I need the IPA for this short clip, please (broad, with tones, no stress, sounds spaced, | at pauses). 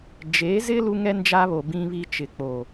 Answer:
d͡ʒ e˨˦ z ɪ˦ l u˦ ŋ ɛ˦ n d͡ʒ a˦ β o˨ b ĩ˦ β i˦ t͡ʃ ɪ˨ k͡p o˦˨